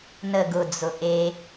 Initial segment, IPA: n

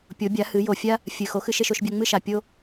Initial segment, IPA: pʲ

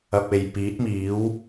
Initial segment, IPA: ɐ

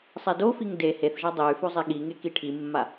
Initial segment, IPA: sˤ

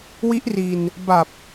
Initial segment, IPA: w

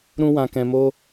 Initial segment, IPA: ɾ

